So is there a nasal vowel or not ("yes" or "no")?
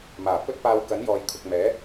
no